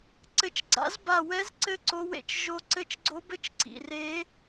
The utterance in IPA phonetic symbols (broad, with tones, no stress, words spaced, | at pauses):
ǀɘ˦˨t͡ʃ ɡ͡ǀa̰˧˥z ba˦˨ wɛ˧˥zǀɘ˧˥ ǀo˧˥wḛ˦˨t͡ʃʒo˧˥ ǀɘ˧˥t͡ʃɡ͡ǀo˧˥bɘ˧˥˧t͡ʃǀḭ˩˧˩ re˧˥